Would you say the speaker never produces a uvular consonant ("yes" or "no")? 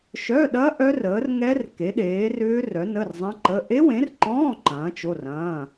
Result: yes